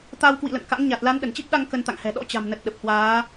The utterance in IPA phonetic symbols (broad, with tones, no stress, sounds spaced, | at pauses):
t̪ a˧ w k w ḭ˧˨ l ə̰˧˨ n k a̰˧˥ ŋ ɲ a˨˩ t̚ l a˨˦ n ɗ ə˧˩ n t͡ɕ i˦˥ p̚ ɗ a˧ ŋ k ə˧ n t̪ a̰˧˨ ŋ h ɛ̤˨˩ ɗ ɔ̰˧˥ t͡ɕ a̤˨˩ m n ə˨˩ t̚ ɗ ə˨˩ p̚ h w aː˨˦